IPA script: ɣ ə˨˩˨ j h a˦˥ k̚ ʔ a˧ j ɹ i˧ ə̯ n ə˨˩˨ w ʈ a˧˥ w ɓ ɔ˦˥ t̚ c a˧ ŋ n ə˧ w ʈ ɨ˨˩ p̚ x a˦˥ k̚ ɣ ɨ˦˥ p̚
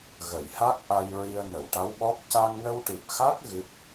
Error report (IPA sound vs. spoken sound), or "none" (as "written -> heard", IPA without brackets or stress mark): t̚ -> k̚